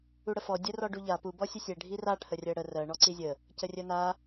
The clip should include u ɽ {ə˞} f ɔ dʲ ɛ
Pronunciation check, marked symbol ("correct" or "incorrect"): incorrect